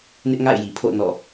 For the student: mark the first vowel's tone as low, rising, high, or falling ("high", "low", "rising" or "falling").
high